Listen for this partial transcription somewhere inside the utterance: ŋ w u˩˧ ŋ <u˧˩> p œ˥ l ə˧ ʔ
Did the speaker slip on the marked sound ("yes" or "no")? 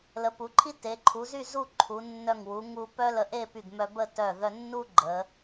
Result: yes